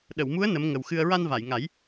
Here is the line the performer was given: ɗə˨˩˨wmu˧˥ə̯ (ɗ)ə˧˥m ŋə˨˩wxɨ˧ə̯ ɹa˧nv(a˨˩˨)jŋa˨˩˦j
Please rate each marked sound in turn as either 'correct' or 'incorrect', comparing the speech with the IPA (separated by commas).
incorrect, correct